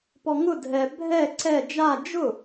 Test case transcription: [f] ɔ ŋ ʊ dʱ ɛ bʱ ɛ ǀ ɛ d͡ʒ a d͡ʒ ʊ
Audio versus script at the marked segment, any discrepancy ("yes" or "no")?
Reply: yes